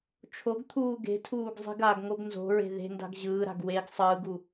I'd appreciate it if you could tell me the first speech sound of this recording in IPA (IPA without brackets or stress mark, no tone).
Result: t͡ʃʰ